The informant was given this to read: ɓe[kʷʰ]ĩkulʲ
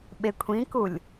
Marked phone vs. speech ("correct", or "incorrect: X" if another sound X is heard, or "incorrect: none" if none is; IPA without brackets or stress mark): correct